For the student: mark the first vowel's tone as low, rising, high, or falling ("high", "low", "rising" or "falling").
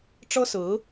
high